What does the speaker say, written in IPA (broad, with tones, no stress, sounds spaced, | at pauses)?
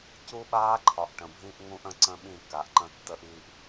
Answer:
c u˦ ɓ aː˦ ǃʰ ɒ˨ ʔ ʈ ə̃˨ bʱ ĩ˦ ʔ ŋ ũ˦ ʔ ə̃˦ ǀ ə̃˦ ɓ ĩ˦˨ k a˨ ʔ ǃ ə̃˦ tː ə˦ ʔ iː˦ ʔ